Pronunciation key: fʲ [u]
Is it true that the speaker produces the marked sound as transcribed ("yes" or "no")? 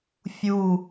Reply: yes